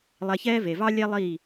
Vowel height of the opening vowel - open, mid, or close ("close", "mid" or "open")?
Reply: mid